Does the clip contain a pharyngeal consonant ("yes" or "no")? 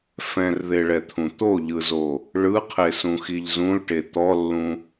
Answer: no